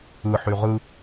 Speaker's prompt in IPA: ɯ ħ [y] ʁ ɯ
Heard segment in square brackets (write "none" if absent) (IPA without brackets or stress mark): y